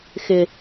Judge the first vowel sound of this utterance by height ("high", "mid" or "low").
high